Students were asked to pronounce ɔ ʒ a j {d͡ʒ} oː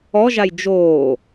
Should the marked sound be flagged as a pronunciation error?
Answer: no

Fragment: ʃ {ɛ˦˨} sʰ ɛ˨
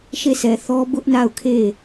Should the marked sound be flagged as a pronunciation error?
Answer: yes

